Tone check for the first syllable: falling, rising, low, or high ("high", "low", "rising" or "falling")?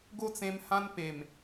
high